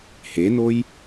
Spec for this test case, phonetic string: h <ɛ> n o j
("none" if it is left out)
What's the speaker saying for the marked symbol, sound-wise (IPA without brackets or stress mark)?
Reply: e